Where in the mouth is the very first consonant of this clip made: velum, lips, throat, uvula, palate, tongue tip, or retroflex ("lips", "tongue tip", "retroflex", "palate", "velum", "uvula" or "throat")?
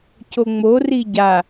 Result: palate